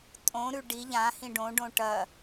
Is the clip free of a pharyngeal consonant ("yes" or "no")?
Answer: yes